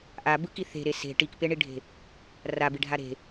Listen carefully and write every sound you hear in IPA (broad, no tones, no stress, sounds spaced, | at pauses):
ʔ a b ɯ k i θ e̤ ɾ e s e̤ ʈ i k p e ɳ i ɖʱ e̤ | r a b i ɖʱ a ɾ e̤